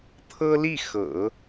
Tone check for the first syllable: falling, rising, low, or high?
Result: high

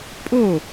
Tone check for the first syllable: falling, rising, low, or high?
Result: falling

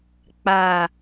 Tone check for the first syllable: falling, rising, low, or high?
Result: low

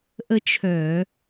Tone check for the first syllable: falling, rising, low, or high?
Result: high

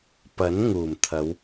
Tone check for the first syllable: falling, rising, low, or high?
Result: rising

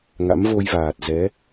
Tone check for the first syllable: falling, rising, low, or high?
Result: rising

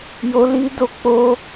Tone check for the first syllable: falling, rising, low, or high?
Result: high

